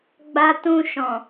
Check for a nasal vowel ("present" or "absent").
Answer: present